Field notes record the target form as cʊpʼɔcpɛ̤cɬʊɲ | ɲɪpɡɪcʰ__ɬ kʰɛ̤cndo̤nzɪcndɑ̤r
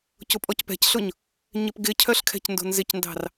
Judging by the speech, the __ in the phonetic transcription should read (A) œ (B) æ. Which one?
A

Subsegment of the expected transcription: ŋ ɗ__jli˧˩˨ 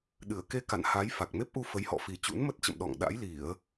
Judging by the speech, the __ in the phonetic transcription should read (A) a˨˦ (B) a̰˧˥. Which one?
B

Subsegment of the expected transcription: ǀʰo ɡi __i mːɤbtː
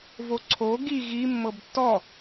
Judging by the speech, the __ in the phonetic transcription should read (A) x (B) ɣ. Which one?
B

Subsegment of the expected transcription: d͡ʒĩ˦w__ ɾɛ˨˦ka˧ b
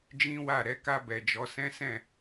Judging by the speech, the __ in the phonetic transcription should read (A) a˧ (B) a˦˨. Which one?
B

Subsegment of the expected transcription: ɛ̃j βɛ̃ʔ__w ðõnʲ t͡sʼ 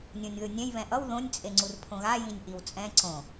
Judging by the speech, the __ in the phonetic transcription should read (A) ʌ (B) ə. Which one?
A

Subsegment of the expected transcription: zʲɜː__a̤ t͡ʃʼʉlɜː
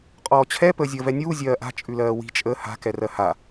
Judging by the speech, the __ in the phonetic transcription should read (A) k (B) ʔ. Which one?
B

